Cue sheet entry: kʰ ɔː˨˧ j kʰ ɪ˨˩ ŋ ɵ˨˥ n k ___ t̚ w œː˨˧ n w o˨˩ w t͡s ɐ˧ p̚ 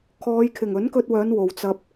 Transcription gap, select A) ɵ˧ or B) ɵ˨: A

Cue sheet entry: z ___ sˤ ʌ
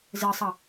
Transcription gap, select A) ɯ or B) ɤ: A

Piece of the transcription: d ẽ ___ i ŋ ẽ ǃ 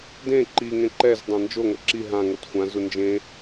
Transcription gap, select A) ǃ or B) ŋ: A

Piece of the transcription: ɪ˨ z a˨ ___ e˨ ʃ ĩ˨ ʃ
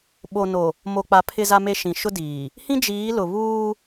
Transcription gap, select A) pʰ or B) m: B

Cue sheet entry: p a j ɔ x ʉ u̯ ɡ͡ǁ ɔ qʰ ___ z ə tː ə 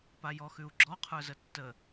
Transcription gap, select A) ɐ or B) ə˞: B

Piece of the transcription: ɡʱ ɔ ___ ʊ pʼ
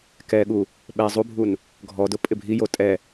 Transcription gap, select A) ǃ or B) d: B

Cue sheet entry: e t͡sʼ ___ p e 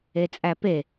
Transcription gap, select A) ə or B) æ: B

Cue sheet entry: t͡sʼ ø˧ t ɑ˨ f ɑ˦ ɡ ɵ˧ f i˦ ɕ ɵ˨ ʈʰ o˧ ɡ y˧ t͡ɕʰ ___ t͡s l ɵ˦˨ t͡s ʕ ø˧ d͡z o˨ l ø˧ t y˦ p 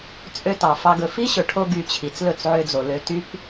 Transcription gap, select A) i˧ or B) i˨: B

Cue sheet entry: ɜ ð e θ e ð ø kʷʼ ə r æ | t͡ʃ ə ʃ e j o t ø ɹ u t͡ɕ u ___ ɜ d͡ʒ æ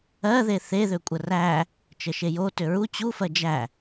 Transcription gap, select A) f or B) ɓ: A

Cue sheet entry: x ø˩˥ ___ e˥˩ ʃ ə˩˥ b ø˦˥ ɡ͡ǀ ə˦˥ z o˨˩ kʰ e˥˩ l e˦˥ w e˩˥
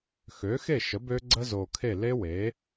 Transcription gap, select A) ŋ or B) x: B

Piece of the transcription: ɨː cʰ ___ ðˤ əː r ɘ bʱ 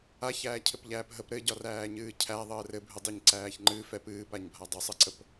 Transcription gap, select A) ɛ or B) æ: B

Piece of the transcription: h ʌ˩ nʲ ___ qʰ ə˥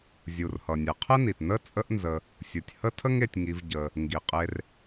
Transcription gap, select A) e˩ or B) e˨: A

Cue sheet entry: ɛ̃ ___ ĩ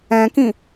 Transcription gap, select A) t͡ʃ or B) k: B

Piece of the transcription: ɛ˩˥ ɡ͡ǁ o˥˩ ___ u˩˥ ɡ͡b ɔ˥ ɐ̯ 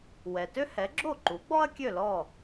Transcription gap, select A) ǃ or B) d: A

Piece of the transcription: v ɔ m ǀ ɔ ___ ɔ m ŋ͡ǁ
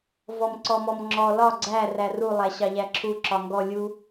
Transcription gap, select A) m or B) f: A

